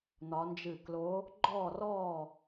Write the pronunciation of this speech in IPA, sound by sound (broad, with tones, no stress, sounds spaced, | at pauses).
n̪ ɒ˨˦ n d͡ʒ ɨ˧˩ k l o˨˦ | ɡ͡ǃ ɔː˧˩ r ɔː˧˩